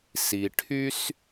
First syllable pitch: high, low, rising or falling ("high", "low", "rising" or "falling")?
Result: low